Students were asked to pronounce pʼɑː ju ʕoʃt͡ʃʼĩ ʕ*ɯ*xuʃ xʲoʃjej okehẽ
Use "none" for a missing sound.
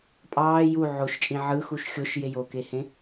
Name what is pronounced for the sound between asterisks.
ɯ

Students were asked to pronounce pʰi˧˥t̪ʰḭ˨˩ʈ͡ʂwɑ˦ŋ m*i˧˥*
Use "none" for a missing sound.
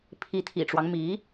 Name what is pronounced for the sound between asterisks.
i˧˥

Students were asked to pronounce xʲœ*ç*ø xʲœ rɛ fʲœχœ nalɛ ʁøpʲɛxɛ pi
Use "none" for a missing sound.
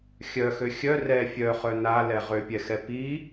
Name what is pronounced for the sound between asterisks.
x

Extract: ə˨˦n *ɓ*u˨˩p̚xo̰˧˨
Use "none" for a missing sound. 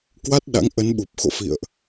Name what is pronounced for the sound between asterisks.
ɓ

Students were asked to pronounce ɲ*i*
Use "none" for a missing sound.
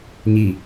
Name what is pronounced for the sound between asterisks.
i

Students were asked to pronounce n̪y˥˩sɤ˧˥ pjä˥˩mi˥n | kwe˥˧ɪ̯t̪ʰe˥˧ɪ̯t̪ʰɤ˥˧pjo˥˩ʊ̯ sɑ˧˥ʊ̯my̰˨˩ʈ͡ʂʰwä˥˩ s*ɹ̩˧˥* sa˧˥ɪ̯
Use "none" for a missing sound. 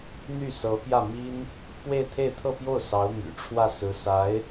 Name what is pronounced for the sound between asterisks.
ɹ̩˧˥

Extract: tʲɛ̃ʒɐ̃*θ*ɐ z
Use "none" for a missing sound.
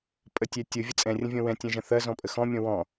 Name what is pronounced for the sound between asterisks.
θ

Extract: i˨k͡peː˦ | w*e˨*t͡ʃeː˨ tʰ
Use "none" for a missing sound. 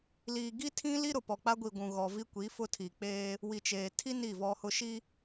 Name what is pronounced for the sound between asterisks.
i˨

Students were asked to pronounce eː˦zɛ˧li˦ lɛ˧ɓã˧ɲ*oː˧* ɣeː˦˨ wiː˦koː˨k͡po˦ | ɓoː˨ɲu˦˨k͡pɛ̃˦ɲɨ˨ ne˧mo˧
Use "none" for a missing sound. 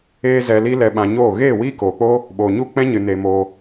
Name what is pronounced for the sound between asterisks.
oː˦˨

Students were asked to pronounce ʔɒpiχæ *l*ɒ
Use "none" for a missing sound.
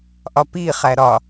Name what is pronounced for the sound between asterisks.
ɾ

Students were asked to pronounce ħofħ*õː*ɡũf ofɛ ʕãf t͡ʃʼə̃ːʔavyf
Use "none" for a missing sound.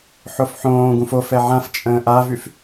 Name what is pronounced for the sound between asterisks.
õː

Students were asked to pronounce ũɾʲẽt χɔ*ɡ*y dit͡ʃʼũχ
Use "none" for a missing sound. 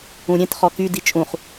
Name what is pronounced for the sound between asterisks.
k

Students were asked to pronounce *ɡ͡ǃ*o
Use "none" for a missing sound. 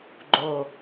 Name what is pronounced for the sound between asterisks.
ɡ͡ǃ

